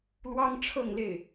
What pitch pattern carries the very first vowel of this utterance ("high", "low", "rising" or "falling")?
high